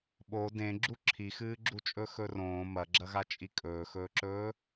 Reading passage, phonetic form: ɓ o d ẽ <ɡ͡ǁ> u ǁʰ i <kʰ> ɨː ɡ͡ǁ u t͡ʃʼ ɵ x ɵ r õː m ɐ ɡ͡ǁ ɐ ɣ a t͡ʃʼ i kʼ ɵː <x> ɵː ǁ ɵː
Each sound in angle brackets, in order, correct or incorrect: correct, incorrect, correct

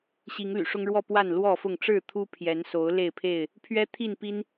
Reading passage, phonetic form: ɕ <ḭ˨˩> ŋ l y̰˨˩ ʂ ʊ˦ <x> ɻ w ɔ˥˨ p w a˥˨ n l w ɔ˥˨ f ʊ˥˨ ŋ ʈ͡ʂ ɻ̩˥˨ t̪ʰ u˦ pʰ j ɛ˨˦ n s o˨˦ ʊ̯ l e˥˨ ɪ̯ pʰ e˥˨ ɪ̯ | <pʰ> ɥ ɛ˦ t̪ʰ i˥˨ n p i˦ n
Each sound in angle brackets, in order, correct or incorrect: incorrect, incorrect, correct

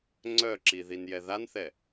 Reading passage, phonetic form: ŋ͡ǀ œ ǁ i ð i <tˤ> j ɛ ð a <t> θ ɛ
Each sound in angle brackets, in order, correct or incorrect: incorrect, incorrect

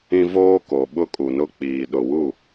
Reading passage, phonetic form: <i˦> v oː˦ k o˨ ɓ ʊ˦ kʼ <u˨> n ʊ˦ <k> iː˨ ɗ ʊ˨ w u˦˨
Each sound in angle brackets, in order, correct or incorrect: incorrect, correct, incorrect

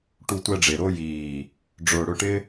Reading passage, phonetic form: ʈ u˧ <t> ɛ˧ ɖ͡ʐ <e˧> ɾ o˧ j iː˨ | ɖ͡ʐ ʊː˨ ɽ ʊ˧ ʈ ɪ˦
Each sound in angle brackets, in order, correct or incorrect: incorrect, incorrect

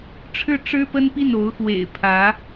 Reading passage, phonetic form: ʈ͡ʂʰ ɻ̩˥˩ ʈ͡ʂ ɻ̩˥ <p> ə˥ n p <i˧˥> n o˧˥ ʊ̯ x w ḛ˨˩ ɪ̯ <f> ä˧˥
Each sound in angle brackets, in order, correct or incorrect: correct, incorrect, incorrect

